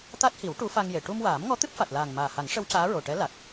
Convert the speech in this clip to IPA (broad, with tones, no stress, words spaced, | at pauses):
t̪a˦˥t̚hi˨˩˦w ʈu˧˥fa˧ŋje˨˩˨ ʈu˧mwaː˨˩˦mŋɔ˧˥ t̪ɨ˦˥p̚fa˨˩t̚laː˨˩ŋ maː˨˩ha˨˩˦ŋʂə˧˥w caː˧˥ɹo˨˩ʈɛ˧˥ la˨˩k̚